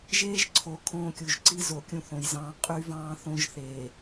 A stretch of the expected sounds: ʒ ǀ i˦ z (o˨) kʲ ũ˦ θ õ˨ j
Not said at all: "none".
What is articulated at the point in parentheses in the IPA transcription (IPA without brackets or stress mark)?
o˨